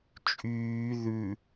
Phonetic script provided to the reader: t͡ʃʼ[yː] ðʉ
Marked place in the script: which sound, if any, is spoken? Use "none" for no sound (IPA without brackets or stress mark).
yː